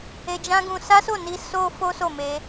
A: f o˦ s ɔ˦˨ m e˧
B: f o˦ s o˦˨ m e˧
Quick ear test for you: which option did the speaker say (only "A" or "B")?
B